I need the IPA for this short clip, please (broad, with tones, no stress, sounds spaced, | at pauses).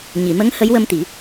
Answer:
ɲ i˨˩˨ m ə˧˥ ŋ h ə˧˥ j w ə˧ m t̪ i˨˩˦